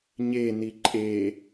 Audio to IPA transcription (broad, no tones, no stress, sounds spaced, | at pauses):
ɲ e n i ǃʼ e